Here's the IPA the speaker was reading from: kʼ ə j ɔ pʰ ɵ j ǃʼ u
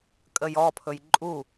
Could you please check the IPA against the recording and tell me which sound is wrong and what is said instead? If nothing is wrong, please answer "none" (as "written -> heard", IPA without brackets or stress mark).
none